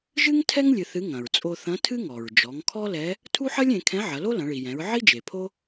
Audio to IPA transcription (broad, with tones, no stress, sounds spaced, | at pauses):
ʒ ɨ˥ ŋ tʰ ɛ˥ ŋ lʲ ɨ˧ θ ɨ˧˥ ŋ ɐ̃˩ ɹ t͡sʼ o˧ θ ɐ̃˧˥ tʰ ɨ˥ ŋ ɔ˩ ɹ d͡ʒ ɔ˩˧ ŋ kʰ ɔ˥ l ɛ˧˥ | tʰ u˥ ħ ɐ˥ lʲ ẽ˩˧ kʰ ɛ̃˧˥ ʕ ɐ˩˧ l o˥ l ɐ̃˩˧ ɭ i˩ j ɛ̃˩˧ ɹ ʕ i˥ d͡ʒ e˩ pʰ o˥